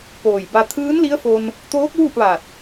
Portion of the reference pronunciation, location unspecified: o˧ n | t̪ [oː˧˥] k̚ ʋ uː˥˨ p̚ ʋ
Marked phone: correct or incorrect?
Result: correct